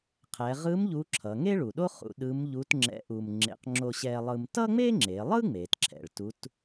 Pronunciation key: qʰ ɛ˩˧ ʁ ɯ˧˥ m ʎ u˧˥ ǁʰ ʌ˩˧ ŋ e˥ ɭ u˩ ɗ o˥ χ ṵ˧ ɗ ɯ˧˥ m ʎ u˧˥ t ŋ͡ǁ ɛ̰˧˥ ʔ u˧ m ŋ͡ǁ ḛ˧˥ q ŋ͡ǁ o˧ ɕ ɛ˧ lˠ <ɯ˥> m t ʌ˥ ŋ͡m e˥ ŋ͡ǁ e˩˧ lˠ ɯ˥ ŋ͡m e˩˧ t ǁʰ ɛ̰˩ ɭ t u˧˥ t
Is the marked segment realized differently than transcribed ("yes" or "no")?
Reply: yes